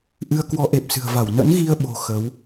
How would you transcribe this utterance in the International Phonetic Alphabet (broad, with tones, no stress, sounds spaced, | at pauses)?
ʔ ɨ˧ ə̯ k w ɔ˨˦ ʔ e˨˩ p̚ s ɨ̤˨˩ ə̯ v a˧˩ w n ə̰˧˥ n ɣ i˧ ə̯ ɓ o̤˨˩ x ə˨˦ w